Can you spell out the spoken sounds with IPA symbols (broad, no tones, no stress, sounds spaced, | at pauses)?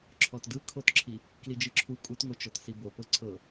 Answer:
ǁʰ ɔ t d ɯ kʰ o t ǁʰ i | k l i d͡ʒ ɯ ǁʰ u kʼ u t ŋ o t͡ʃ ɔ t s i b o p ɤ ǀʰ ɤ